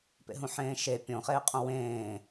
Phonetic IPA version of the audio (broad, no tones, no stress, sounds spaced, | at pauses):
p ḛ ɦ ũ ħ ẽː ʃ e pʲ õ χ eː qʼ õ w ẽː